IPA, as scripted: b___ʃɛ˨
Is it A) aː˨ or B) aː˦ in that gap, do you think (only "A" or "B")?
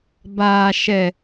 A